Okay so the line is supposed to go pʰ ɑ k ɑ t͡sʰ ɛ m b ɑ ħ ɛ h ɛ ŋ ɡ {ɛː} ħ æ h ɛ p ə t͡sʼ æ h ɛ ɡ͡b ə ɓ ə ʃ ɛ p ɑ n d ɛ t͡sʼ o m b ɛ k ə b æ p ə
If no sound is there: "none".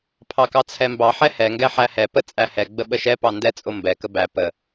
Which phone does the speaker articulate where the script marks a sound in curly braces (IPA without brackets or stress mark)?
ɛ